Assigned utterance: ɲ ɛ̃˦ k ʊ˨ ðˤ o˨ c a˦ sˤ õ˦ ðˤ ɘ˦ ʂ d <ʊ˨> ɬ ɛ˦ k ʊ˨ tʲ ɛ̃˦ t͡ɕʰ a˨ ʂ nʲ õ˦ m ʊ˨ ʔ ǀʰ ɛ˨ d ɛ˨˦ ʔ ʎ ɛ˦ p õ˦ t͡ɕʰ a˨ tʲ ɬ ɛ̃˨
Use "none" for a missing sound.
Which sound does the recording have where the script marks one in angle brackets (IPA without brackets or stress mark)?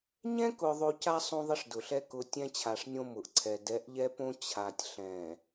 ʊ˨